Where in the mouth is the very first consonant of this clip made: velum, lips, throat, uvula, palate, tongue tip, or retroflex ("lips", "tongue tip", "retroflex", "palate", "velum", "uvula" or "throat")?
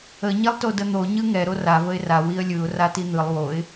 palate